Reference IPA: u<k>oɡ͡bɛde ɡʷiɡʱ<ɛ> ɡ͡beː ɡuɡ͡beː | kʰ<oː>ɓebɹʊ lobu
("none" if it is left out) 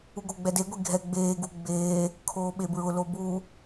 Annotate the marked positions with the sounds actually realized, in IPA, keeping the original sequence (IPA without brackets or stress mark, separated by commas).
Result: ɡ, ɛ, oː